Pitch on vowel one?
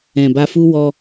low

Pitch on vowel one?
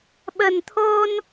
low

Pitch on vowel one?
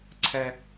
low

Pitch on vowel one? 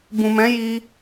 low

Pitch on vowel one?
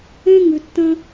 high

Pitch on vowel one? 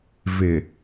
low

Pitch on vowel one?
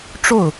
falling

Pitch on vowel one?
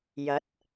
rising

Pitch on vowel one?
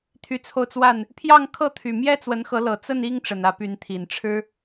rising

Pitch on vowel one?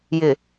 low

